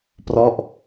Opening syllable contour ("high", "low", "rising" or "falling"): falling